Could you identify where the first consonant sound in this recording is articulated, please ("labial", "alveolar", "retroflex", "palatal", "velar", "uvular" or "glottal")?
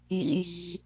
palatal